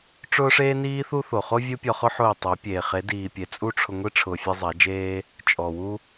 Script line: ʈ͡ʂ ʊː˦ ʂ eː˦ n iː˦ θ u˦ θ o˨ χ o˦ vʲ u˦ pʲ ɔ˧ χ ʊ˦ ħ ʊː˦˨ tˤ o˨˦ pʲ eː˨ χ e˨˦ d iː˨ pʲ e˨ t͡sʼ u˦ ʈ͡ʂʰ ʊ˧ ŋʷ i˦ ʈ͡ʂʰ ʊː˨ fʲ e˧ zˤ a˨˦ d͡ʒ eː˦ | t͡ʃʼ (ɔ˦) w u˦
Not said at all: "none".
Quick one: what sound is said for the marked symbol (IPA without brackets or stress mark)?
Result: ɔ˨